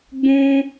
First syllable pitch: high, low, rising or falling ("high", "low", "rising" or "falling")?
high